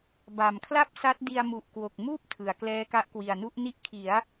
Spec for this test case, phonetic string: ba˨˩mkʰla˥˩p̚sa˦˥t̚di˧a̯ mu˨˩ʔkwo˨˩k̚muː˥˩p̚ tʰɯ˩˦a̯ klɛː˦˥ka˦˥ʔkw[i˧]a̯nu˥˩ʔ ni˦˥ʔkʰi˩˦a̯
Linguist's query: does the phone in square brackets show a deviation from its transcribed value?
yes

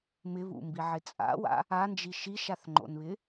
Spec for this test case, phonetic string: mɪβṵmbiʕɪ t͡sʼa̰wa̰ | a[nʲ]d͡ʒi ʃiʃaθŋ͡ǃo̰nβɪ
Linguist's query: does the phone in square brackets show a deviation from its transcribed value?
yes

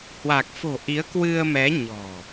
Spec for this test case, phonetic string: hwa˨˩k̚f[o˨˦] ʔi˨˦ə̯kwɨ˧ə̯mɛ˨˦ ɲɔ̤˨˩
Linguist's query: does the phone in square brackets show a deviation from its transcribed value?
yes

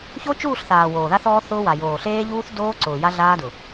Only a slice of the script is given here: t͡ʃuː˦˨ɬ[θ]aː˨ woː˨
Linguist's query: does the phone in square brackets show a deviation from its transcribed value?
no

